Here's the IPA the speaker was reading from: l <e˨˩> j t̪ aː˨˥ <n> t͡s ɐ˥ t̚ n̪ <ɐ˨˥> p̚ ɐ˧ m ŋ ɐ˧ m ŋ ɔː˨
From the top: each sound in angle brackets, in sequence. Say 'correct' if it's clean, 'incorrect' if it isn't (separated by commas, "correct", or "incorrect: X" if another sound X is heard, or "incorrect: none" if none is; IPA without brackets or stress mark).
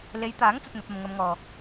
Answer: incorrect: e˨˧, incorrect: ŋ, correct